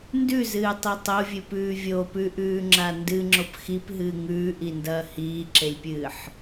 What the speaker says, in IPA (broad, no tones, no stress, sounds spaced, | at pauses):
n d ʉ z ɨː tˤ i tˤ o vʲ ɨ p ʉː vʲ o p ʉ ʔ ʉː ŋ͡ǁ a n d ɨ ŋ͡ǁ o p x i p ɦ ɨː ŋ ʉː ʔ i n d ɐː h iː ǁ e lʲ pʲ ɨː ħ